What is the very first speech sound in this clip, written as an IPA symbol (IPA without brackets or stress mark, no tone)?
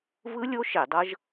v